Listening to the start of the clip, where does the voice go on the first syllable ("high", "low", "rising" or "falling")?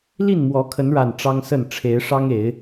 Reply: falling